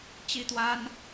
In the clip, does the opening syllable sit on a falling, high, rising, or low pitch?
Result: falling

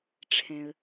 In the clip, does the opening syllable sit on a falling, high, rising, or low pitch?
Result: low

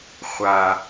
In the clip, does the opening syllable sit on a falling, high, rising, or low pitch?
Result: low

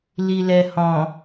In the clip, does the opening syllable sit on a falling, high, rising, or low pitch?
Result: low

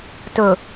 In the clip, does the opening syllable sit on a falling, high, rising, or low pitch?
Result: low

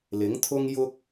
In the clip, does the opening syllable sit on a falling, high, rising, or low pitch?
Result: rising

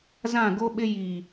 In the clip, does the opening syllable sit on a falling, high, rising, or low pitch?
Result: falling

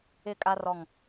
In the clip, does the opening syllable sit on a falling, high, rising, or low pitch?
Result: falling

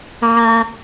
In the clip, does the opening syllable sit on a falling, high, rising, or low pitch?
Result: low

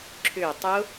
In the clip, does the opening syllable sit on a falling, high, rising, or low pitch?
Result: low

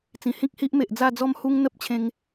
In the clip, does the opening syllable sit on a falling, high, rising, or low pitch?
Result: low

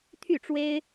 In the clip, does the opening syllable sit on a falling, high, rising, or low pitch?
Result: falling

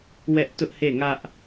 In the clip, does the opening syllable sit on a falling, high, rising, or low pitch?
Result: high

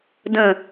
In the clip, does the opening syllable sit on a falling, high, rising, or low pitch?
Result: falling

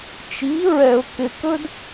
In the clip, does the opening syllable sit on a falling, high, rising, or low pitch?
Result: rising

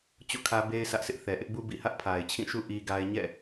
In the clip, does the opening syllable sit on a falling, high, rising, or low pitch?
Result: falling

